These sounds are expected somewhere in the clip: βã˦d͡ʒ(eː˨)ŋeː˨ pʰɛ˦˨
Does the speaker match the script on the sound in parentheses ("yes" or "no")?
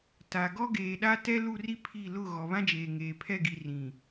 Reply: yes